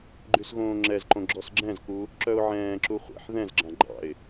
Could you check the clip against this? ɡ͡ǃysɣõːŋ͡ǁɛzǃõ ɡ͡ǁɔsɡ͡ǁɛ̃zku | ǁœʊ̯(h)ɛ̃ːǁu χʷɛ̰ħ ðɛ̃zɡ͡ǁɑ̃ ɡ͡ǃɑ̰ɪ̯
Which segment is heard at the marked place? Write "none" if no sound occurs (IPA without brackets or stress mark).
ʕ